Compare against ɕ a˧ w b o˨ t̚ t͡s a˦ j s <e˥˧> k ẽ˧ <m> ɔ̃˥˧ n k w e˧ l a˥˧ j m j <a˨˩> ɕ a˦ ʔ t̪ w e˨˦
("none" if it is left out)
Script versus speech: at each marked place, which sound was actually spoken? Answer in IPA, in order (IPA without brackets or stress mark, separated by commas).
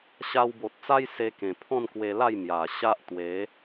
e˦, pʰ, a˨˩